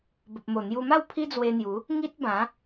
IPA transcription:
b ə˨ p̚ m o˨˩ n̪ j u˧ m a˥˧ w pʰ i˦ d͡z w e˧ n̪ j u˨˦ | ŋ i˦ t̚ b ã˨˦

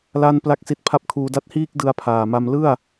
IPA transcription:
l a˥˩ n p l a˥˩ k̚ s i˦˥ t̚ pʰ a˥˩ p̚ kʰ uː˧ d a˦˥ t̚ h iː˥˩ k̚ d ɯ˦˥ a̯ pʰ aː˨˩ m a˧ m l ɯ˥˩ a̯

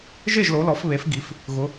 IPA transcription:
ʒ e˥˩ ʒ l o˩˧ l ɔ˩˧ f β e˩˧ f ɡ i˩˧ f | ɣ ʊ˩˧

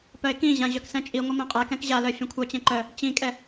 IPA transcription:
p œ e̯ k ĩ ʑ ã ʑ œ k s ɛ̃ t͡ʃʼ i ŋʷ ɤ m ɛ̃ qʼ ɛ k ɛ̃ k ʑ a l œ fʲ ɛ̃ kʷʰ œ t͡ɕ ɛ̃ ǃ œ | t͡ɕ ĩ kʼ ɛ

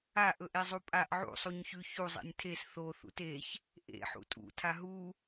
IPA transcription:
a ʔ ɵ ʔ e zˤ u pʼ a ʔ ʕ ṵ sˤ u ɲ ç ʉ ç u zˤ ḛ nʲ tʰ e s θ o θ ṵ t e ç | ʔ ḛ ħ ṵ tʼ ṵ tʰ a ɦ u

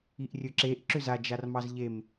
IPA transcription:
i ʔ rʲ ɵ ǁ e ʔ ǁ ʏ z a d͡ʒ a r m ɑ z ʎ e m

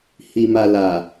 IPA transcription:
h i˨ m a˨ l a˨

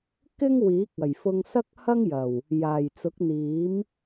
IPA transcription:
k ɪ˥ ŋ w iː˨˥ k̚ ɐ˨˩ j f ʊ˧ ŋ s ɐ˥ k̚ h ɐ˥ ŋ j ɐ˨˩ w | j aː˨˩ j t͡s ʊ˨˥ k̚ n̪ iː˨˥ m

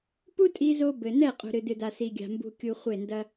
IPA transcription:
p u˦ tʼ i˦ z o˦ b ɘ˨ n ɛ˦˨ qʼ ṳ˨ ɾ ɨ˨ d ɨ˨ d a˨ s i˨ ɡʲ a̤˨ m b ṳ˨ kʲ u˨ χʷ e˦˨ n d ɐ˦

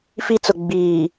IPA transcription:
f i˦ t͡s ʊ˨ ɡ͡b iː˨

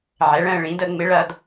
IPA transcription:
ʕ ɛ˩˥ ɭ ə̃ː˥˧ ɭ ĩ˧˥ d ə˥˧ ŋ͡m ɪ˧˥ ɭ ɐ˥˧ d

